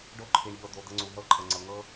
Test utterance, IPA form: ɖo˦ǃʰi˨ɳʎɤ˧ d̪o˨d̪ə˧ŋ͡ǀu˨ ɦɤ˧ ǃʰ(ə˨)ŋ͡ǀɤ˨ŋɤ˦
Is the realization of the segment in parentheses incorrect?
no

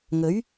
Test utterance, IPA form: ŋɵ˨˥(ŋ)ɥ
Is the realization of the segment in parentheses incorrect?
yes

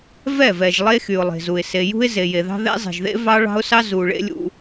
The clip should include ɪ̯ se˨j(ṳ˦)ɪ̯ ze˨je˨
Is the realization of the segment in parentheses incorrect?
no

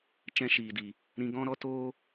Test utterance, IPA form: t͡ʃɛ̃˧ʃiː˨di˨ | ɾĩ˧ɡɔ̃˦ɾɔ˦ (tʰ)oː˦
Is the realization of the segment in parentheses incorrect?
yes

